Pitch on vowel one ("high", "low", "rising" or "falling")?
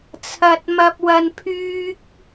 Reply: low